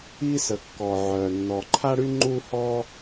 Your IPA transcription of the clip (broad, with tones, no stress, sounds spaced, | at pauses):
i˥ s ə˩ kː ɔ˩ ʕ œ˩ nː ɔ˩ ǃʰ a˥ ɽ y˥ ŋ͡ǃ u˥ h ɔ˥